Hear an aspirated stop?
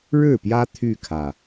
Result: yes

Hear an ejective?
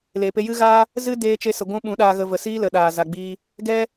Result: no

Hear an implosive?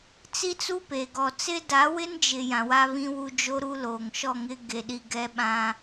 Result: yes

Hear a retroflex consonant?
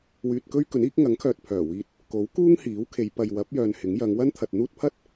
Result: no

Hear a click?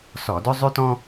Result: no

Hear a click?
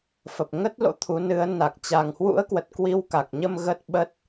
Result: no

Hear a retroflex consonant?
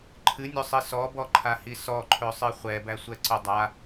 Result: no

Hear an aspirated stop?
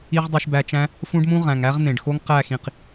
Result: no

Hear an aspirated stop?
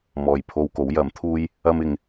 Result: yes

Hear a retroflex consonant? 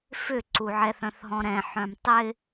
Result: no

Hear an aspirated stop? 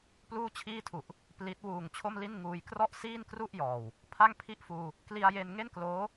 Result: yes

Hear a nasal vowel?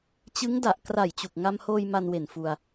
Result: no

